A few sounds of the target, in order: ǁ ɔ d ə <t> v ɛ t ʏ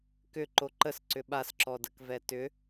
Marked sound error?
yes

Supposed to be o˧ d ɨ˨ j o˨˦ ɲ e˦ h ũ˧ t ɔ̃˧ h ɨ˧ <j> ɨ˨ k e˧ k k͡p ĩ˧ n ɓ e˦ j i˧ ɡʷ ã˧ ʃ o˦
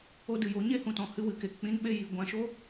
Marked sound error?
yes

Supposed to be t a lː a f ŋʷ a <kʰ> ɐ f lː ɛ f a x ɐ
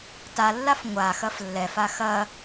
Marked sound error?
yes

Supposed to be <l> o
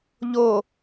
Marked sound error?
yes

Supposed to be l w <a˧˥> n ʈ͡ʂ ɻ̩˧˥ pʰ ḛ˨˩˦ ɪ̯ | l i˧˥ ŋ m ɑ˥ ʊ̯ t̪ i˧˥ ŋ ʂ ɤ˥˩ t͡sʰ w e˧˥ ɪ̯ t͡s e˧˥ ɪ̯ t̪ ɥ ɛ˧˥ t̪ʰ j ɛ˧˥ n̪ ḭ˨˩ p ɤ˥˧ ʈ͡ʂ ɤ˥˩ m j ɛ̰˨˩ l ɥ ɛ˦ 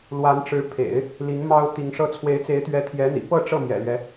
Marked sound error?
no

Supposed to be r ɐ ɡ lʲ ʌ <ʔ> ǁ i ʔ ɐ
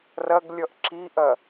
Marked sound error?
no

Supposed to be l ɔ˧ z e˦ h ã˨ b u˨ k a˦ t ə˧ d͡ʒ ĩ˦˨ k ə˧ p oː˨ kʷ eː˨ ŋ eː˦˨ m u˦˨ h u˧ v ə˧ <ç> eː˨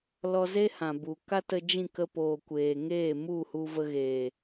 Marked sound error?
yes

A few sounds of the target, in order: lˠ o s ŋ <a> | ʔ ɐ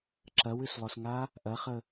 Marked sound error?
no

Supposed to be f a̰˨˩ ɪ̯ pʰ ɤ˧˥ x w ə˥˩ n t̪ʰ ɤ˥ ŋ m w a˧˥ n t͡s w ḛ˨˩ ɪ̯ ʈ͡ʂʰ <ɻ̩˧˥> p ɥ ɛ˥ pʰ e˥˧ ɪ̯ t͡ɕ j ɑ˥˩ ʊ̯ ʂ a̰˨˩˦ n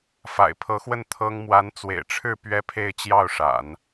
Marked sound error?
yes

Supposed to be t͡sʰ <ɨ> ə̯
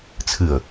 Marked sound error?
no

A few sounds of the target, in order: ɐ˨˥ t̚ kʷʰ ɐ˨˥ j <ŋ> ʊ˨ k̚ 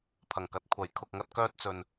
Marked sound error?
yes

